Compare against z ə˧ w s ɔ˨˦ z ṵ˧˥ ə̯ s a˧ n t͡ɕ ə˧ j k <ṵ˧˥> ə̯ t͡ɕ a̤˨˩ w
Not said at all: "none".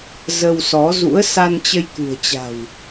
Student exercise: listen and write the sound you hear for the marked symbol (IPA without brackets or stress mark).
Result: ṳ˨˩